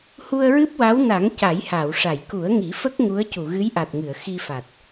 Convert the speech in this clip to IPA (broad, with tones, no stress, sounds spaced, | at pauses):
h u˧ ə̯ ɹ ɨ˦˥ p̚ w a˧˥ w n a˨˩˦ ŋ c a˨˩˦ j h a˨˩˨ w ʂ a˨˩˨ j k u˨˩˦ ə̯ ŋ i˨˩˦ f ə˦˥ k̚ ŋ u˧˥ ə̯ c u˨˩˨ ɣ ɨ˧˥ j ʔ a˨˩ t̚ ŋ ɨ˨˩˨ ə̯ x i˧ f a˨˩ t̚